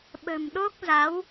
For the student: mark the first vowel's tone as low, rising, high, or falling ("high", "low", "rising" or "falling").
low